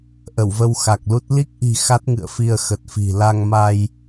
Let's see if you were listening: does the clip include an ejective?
no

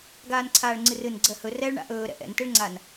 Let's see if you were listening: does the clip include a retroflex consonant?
yes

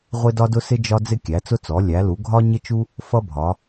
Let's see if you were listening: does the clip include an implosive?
no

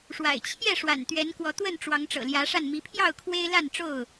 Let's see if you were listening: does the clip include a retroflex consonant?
yes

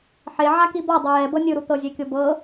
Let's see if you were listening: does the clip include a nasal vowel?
no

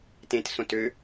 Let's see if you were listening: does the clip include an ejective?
no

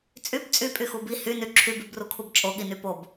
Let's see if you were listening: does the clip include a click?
yes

